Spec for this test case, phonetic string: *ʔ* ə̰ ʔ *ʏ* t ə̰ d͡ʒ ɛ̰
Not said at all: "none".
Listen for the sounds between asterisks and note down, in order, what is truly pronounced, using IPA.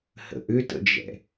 h, ʏ

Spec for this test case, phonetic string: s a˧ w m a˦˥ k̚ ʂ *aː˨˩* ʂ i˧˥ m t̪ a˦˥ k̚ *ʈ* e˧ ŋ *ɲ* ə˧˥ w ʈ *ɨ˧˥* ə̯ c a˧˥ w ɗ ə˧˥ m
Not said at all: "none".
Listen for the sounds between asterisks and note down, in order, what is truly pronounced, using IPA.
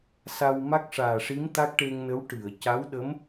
aː˨˩, ʈ, n, ɨ˨˩˨

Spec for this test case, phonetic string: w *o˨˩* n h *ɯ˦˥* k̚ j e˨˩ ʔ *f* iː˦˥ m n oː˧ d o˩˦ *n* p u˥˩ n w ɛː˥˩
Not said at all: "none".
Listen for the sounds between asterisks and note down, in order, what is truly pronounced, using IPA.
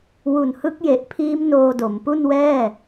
u˨˩, ɯ˦˥, pʰ, m

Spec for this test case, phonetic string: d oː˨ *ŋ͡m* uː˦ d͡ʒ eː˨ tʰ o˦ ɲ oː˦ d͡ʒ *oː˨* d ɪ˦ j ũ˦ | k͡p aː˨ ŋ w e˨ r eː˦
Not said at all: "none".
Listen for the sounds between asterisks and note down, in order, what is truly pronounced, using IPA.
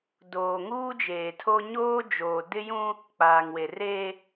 ŋ, oː˨

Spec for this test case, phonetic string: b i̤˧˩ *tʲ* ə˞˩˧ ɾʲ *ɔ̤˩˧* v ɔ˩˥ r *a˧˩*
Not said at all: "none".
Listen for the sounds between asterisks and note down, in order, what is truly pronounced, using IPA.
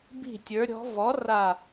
tʲ, ɔ̤˩˧, a˧˩

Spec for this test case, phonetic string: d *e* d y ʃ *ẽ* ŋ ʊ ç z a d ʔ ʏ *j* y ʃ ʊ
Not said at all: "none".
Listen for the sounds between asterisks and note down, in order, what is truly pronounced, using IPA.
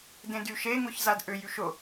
ẽ, e, j

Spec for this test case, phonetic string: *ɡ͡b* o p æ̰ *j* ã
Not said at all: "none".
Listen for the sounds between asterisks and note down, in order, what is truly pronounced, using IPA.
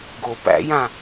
ɡ, j

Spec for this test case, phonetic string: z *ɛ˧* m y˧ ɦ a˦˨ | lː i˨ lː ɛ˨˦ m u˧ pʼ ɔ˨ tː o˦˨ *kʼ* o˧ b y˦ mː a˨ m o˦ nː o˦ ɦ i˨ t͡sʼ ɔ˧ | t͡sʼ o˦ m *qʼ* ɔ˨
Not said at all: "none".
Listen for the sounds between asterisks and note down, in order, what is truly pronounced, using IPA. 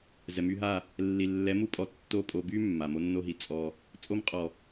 ɛ˨, pʼ, qʼ

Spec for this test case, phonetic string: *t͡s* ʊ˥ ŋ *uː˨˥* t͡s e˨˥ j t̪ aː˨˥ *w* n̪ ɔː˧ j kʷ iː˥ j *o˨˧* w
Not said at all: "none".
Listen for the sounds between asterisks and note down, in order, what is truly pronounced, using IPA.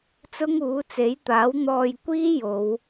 t͡s, uː˨˥, w, o˨˧

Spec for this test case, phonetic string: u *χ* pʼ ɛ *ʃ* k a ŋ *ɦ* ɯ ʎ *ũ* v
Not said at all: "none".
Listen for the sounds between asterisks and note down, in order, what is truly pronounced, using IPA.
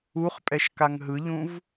χ, ʃ, ɦ, ũ

